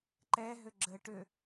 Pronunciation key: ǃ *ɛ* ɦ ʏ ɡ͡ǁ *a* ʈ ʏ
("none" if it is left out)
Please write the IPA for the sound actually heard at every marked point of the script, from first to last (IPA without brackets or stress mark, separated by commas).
ɛ, ə